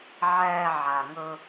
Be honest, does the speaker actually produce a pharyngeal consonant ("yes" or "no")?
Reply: yes